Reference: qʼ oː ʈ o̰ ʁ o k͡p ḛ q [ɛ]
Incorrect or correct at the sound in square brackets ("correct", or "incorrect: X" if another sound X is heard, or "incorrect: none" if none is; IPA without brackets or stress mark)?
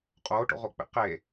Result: incorrect: e